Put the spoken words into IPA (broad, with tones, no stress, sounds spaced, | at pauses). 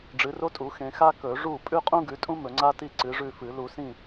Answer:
ɖ͡ʐ ɨ˨˦ r o˥ tʼ u˨˦ x ẽ˨˦ x a˥ k ɵ˨˩˦ ʐ u˥˨ pʼ ʉ˥ qʼ ũ˥ ɡ ʉ˨˦ tʼ ũ˥ m ɵ˨˩˦ ŋ͡ǀ a˥ t i˥˨ ǀ ɨ˨˦ ʐ ʉ˥˨ f ɨ˨˩˦ l u˨˩˦ s ĩ˥˨